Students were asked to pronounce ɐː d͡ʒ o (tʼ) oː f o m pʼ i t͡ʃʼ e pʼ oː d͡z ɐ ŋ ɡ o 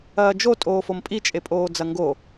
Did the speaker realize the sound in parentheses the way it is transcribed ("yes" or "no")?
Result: yes